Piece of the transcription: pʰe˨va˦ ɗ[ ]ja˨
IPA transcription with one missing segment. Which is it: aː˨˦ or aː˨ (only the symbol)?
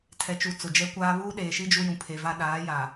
aː˨˦